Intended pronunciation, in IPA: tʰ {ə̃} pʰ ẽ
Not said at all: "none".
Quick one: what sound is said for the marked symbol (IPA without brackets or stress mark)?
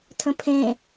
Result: ə̃